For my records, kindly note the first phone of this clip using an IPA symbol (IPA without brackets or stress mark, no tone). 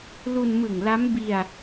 l